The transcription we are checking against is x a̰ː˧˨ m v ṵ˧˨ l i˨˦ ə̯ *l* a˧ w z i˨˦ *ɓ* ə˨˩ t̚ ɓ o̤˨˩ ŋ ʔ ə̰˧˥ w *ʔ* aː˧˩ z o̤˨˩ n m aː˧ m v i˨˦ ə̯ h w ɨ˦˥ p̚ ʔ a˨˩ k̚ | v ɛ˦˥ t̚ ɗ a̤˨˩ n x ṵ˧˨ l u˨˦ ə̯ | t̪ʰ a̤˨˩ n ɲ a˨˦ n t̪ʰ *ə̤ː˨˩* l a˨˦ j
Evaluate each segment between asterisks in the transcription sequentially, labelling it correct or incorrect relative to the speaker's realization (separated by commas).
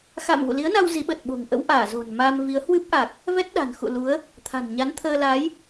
incorrect, correct, correct, incorrect